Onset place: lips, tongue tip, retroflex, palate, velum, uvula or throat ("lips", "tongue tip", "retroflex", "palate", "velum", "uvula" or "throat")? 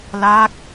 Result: tongue tip